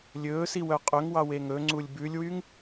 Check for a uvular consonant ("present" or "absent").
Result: present